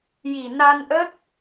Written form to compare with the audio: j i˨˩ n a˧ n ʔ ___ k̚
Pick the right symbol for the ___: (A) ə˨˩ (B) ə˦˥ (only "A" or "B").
B